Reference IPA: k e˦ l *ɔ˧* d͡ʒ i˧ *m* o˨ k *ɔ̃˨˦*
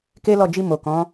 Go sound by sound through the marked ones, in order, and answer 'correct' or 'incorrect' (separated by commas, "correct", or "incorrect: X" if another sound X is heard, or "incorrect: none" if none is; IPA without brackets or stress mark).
incorrect: ɔ˦˨, correct, correct